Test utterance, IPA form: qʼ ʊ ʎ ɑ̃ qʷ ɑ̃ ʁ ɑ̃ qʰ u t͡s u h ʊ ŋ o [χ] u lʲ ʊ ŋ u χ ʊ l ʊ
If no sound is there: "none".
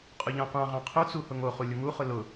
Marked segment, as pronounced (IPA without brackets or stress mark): χ